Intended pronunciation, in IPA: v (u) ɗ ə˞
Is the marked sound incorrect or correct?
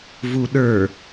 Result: correct